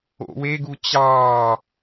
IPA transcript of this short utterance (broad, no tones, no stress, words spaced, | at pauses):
o̰weɡu t͡ɕɑː